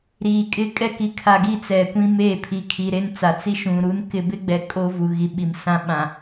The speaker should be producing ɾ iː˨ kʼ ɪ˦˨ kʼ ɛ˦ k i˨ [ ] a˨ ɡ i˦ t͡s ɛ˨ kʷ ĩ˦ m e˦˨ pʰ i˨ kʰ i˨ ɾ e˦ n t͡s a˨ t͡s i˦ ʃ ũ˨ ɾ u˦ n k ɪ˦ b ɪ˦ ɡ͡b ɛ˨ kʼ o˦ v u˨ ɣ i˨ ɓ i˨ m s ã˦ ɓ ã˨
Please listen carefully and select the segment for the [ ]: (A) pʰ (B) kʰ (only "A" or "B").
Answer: B